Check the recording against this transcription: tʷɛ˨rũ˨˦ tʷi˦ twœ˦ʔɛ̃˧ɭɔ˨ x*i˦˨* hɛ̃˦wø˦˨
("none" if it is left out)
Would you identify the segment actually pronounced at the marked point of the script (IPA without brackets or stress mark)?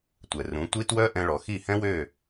i˦˨